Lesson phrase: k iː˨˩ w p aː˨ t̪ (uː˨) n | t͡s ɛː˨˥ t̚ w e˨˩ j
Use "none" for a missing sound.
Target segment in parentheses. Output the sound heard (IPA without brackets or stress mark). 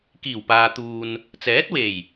uː˨